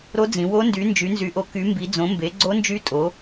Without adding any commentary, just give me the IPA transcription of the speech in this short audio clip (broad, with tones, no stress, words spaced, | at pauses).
ɾo˧˥d͡zĩ˩˧wo˧˥ ndy˩˥nd͡ʒy˩˥nzy˩˥ʔo˩˥ ky˩˥mbi˩˥ d͡zõ˩˥mbe˩˥ ɡ͡ǀo˧˥nd͡ʒy˧˥ tʼo˩˥